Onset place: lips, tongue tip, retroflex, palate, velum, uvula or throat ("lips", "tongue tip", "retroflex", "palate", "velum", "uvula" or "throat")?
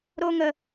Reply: tongue tip